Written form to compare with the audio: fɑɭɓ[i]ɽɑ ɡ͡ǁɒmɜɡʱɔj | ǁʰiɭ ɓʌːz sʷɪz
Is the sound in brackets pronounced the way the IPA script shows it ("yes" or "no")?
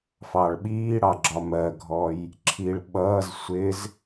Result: no